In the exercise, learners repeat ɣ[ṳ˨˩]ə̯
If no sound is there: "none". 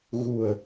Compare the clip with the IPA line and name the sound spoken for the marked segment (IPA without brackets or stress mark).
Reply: ṳ˨˩